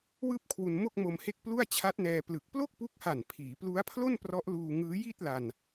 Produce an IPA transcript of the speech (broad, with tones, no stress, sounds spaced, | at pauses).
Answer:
w ɯː˥˩ p̚ kʰ w u˧ n m o˥˩ k̚ m o˧ m h e˥˩ k̚ p l u˥˩ a̯ t͡ɕʰ a˦˥ t̚ n ɛː˧ p l ɯ˨˩ k̚ p l o˥˩ k̚ p u˦˥ k̚ h a˨˩ n pʰ iː˩˦ p l u˦˥ a̯ pʰ l o˥˩ n p r ɔ˦˥ ʔ l uː˧ ŋ ɯː˦˥ j i˥˩ t̚ l a˧ n